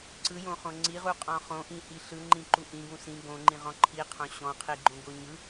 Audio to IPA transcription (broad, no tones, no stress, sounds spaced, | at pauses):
ǀ ɯ j õ χ õ ŋ͡ǀ i ʁ u qʼ ɔ̃ χ õ ʔ ĩ h i ɬ ɯ ŋ͡ǃ ĩ ǃ u ʔ ĩ ɡ ũ s ĩ ɡ õ ŋ͡ǃ ĩ ʁ ɔ̃ ǃʰ i qʰ õ ɕ ɔ̃ qʰ i ɡ͡ǃ õ ɡ o ɲ ɯ